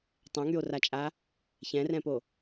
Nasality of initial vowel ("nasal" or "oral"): nasal